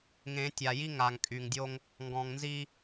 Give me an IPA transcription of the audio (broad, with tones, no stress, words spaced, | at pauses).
ŋẽ˨˦ tʲa˨ji˦ŋa˨ŋ kʼy˨ŋdʲo˦ŋ | ŋɡɔ̃˨ŋnzi˦